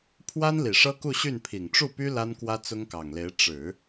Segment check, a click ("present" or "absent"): absent